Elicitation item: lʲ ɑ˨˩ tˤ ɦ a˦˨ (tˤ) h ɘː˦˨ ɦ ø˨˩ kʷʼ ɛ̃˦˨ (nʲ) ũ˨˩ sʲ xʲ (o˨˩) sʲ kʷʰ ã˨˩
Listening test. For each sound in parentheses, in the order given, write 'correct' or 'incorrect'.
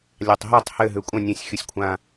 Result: correct, correct, incorrect

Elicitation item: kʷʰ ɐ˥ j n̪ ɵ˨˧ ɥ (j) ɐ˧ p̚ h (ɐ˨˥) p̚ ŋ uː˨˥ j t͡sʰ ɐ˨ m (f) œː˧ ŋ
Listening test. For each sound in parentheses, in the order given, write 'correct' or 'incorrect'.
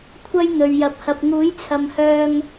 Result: correct, incorrect, incorrect

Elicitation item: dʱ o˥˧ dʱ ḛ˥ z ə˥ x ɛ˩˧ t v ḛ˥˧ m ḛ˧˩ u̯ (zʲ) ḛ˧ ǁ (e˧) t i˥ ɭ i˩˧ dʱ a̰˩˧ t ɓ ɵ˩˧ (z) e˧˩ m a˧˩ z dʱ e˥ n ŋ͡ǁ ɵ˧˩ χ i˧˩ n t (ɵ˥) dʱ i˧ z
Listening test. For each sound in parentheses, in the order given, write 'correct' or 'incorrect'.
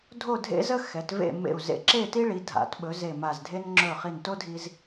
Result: incorrect, incorrect, correct, incorrect

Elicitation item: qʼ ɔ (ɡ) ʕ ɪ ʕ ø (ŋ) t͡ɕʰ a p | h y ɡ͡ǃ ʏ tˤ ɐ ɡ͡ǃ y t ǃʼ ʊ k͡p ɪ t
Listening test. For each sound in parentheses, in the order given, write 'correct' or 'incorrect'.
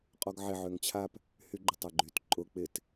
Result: correct, correct

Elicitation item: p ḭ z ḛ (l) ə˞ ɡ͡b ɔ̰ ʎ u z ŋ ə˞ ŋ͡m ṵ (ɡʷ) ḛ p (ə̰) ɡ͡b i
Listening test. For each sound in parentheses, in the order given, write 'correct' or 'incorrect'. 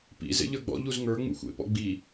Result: incorrect, incorrect, incorrect

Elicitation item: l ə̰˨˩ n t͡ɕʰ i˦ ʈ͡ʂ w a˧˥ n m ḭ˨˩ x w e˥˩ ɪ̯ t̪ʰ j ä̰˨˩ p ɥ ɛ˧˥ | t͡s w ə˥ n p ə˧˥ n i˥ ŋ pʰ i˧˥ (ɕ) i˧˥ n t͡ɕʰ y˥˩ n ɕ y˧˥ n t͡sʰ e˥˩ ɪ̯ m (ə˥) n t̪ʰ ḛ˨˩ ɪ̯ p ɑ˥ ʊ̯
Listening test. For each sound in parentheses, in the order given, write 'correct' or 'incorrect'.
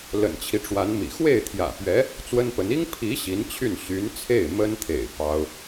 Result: correct, correct

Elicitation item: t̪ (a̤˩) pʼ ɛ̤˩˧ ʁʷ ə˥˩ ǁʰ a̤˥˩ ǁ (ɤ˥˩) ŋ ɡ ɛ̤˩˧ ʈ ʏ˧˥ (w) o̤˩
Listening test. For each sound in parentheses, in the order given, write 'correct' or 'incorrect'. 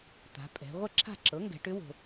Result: incorrect, incorrect, correct

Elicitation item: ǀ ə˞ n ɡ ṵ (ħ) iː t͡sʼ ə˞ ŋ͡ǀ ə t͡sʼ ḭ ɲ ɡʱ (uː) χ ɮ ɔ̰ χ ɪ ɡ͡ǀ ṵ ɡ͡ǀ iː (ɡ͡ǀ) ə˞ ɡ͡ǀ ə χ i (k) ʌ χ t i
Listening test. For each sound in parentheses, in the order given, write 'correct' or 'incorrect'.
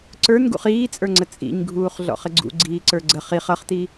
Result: incorrect, correct, incorrect, incorrect

